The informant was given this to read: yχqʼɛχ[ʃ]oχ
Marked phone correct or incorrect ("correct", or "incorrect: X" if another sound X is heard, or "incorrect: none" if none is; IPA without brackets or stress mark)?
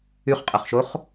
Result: correct